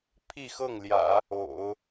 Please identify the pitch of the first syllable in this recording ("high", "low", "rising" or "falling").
falling